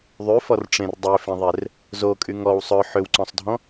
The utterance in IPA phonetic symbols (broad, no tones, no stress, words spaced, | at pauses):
ðˤyfɔrʈ͡ʂẽr dˤøfẽðˤer | zokʼy ŋɔw sˤœ ħʏwǀɔ̃sˤdʱɔ̃